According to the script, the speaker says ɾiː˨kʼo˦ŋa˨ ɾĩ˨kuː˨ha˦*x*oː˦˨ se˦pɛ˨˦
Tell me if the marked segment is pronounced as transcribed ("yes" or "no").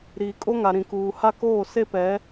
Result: no